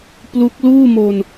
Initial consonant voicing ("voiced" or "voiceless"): voiceless